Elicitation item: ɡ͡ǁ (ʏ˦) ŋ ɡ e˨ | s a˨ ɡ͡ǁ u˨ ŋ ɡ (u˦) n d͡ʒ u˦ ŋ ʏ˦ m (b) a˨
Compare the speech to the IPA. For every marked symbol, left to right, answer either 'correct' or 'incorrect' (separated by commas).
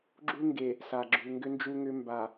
incorrect, incorrect, correct